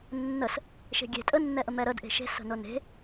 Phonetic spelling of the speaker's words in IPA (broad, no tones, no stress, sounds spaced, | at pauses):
nː ə s | ʃ e̤ ɡʲ e̤ tʼ ə nː ɛ ʔ ə m ɛ ɾ ə d ʔ e̤ ʃ e̤ s ə̤ n ʊ n e̤